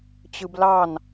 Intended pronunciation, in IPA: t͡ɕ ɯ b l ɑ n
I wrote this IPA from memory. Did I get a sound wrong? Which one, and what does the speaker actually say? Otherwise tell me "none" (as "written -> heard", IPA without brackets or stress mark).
none